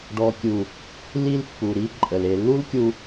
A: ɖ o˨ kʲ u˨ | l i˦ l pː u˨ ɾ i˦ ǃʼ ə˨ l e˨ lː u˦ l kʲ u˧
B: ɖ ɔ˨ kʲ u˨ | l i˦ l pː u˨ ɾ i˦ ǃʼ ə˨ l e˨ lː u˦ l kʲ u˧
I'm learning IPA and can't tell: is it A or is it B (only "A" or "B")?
B